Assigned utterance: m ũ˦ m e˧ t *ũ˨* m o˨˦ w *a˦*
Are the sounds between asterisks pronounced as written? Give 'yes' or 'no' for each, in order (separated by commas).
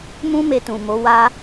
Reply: yes, no